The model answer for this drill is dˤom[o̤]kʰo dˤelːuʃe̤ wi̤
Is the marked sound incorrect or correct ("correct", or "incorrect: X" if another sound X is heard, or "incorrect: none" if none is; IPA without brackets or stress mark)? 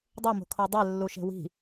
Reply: correct